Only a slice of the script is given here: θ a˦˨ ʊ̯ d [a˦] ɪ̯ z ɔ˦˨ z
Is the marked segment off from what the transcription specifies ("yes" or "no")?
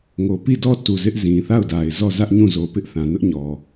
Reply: yes